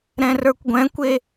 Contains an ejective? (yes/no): no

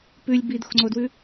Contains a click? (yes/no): yes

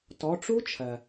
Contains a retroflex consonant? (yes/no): yes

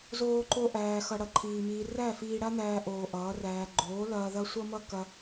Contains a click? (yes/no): yes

